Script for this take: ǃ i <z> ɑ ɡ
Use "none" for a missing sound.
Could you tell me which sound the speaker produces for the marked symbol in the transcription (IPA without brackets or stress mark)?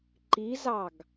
z